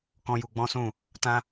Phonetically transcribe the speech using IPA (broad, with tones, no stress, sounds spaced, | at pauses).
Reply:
k ɔ̃˦ j u˧ ɡ͡b ɔ̃˦ s ũ˦˨ | t ã˦